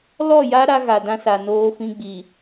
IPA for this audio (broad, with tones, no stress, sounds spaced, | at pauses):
l ɔ˦˨ j a˦ ɾ a˦ ɣ a˨ d ã˦ s a˨ n oː˦ f ĩ˦ ɡ͡b i˨